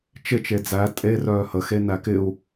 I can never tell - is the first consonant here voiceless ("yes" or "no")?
yes